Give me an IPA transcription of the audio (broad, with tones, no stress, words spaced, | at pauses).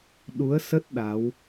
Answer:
ɗu˨˦ə̯sə˦˥t̚ ɗa˨˦w